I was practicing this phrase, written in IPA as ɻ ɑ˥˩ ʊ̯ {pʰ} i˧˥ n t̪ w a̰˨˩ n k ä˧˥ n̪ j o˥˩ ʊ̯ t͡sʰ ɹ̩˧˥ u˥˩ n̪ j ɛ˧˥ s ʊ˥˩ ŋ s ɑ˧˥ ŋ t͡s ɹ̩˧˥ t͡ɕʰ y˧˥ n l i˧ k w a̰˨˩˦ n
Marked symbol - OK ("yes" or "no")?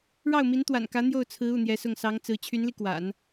no